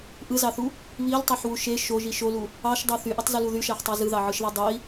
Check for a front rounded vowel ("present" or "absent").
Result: present